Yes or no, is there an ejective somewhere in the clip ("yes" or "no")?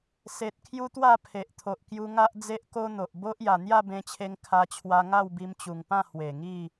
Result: no